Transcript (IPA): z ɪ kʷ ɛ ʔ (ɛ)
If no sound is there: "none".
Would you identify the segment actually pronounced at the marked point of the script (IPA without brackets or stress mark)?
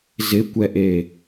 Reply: e